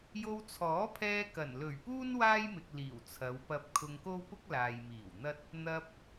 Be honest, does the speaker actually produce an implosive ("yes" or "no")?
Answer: no